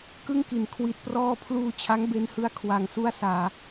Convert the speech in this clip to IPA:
k ɯ˥˩ ŋ k i˨˩ n kʰ w i˨˩ t̚ p r ɔː˧ pʰ l uː˧ t͡ɕʰ a˦˥ ŋ b e˧ n h ɯ˦˥ a̯ kʰ w a˧ ŋ s u˥˩ a̯ s aː˧

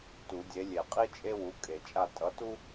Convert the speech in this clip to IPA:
t u˨˩˦ dʲ e˨˥ lʲ e˨˩˦ qʼ i˥ t͡ʃʼ e˥ w u˨˥ kʼ e˨˩˦ t͡ʃʼ a˥˨ tʼ ʌ˨˥ t u˥

